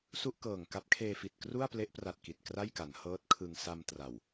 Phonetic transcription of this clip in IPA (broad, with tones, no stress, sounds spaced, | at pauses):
s u˥˩ ʔ k ɤː˨˩ ŋ k a˦˥ p̚ kʰ eː˧ f i˨˩ t̚ k r u˥˩ a̯ p l e˦˥ ʔ p r a˨˩ t̚ k i˨˩ t̚ k r a˥˩ j k a˩˦ n h ɤː˦˥ t̚ kʰ ɯ˧ ŋ s a˧ m t r a˨˩ w